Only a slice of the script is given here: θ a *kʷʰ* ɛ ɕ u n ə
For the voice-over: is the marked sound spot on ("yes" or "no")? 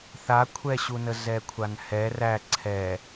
yes